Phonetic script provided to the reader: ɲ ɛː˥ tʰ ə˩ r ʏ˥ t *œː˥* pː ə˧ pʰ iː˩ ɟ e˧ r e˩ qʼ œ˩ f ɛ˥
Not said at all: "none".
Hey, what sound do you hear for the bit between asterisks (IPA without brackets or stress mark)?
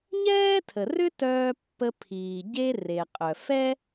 œː˧